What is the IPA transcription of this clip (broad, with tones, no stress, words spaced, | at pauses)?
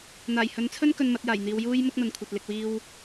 n̪aː˨˩jhɵ˨˥nt͡sʰɵ˥n kɵ˧nmɐ˨˥t̚jaː˨˩jn̪iː˨˧w juː˥j mʊ˥k̚n̪ɐ˨nkʷʰɐ˨t̚ lɪ˨k̚wiː˧w